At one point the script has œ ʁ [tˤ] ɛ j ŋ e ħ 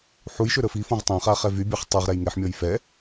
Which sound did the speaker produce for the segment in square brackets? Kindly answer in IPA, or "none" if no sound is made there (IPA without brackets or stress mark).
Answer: ɾ